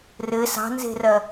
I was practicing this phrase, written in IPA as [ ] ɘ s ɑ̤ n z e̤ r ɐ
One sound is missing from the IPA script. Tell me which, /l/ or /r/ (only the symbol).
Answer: r